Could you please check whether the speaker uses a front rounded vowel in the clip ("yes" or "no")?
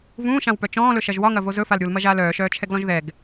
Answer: yes